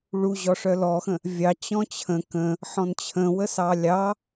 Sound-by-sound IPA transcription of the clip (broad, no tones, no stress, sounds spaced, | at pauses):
ɭ u ʑ ɔ ʂ œ l ɔ x ə̃ | vʲ ɑ t͡ɕ ɔ̃ t͡ɕʰ ə̃ k ə̃ | ħ ɔ̃ n t͡ɕʰ ə̃ w ə s ɑ lʲ ɑ